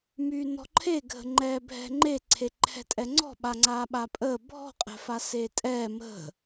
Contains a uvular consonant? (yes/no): yes